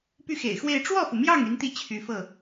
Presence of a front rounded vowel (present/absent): present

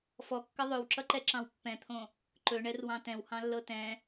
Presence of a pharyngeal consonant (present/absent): absent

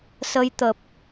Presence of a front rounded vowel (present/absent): absent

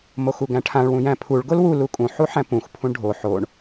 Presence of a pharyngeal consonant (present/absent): present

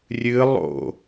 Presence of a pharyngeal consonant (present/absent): absent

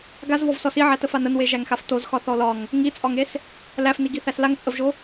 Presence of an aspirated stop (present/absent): absent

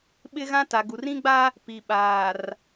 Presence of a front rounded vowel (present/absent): absent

